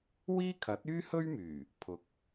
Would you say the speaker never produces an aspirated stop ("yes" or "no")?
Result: no